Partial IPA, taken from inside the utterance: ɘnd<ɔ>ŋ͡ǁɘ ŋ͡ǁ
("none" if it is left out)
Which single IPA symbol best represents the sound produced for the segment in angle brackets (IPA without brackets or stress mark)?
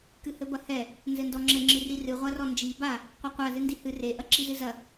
ɔ